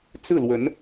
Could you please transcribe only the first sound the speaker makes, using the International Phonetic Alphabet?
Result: t͡s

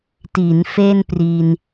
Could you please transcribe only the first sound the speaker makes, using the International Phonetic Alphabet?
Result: t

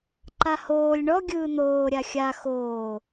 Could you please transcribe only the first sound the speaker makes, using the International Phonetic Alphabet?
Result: ǃ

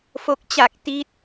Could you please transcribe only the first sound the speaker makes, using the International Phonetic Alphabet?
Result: f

